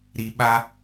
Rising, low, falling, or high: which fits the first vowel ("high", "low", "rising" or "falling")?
low